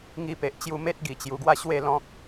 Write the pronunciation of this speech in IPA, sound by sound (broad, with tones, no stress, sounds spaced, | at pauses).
ŋ i˧ p e˨ ʔ t͡ɕ j u˧ m e˦ t̚ ɡ i˨˩ t͡ɕ j u˨˩ ɡ w a˥˧ ɕ w e˥˧ l ɔ̃˦ k̚